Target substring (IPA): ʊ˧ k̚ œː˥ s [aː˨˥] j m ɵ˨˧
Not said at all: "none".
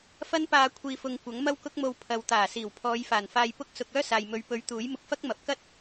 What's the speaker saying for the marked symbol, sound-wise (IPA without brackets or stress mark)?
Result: aː˨